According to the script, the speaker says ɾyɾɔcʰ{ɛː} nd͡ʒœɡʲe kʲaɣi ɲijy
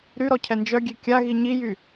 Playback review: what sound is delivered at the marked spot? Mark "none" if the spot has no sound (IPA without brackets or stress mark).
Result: ɛ